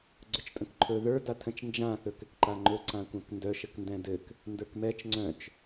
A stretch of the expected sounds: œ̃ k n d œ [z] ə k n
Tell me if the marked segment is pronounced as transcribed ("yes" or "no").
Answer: no